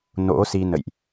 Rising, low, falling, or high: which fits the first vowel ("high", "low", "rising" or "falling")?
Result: rising